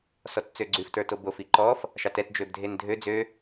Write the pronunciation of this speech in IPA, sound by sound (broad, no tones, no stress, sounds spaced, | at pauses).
s ɔ t t͡s ø ɡ͡ǀ ʉ f t ə˞ t o b o f i ǃ ɔ f | ʃ ɑ t ɛ t d͡ʒ ø b dʱ e n dʱ ø d͡z ø